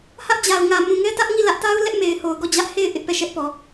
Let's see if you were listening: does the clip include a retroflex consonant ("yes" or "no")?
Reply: no